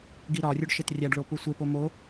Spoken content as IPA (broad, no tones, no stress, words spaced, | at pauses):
ɡiɾɒrʲuɖ ʃetrʲæɖɭo pusʷepo mo